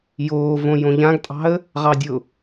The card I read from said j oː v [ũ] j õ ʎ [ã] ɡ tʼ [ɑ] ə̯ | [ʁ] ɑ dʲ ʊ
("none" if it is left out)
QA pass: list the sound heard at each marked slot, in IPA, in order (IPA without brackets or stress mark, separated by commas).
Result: õ, ã, ɑ̤, ʁ